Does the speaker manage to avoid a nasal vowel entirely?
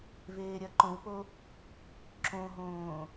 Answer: no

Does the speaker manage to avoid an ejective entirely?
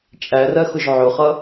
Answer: no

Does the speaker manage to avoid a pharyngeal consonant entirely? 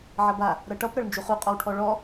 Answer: no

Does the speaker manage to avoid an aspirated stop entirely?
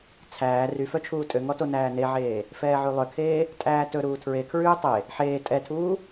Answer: no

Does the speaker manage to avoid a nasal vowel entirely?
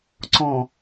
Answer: no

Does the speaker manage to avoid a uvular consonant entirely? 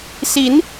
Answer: yes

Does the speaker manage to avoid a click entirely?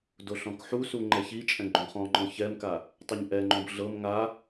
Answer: no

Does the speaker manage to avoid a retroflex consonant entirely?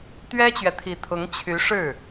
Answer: no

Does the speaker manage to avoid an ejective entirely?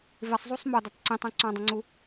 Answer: yes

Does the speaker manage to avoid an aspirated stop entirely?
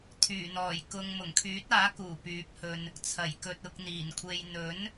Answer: no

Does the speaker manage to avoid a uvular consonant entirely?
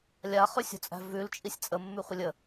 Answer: no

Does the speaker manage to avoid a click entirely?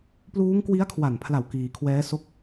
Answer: yes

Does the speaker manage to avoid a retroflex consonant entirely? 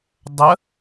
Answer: yes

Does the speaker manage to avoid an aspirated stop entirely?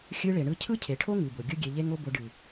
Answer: no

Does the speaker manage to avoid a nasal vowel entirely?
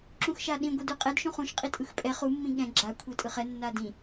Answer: no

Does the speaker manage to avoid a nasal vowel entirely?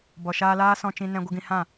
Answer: no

